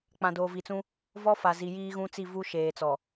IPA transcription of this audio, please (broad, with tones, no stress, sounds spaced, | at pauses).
k͡p ã˨ d oː˨ v i˨ t͡s ũ˦ | v ɔ˦ f a˨ z i˨ j iː˦ ɣ ũ˦ t͡s i˦˨ v u˦ ʃ eː˨ t͡s ɔ˨